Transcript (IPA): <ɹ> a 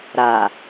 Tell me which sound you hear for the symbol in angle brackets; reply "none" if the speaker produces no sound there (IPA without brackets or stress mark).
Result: ɾ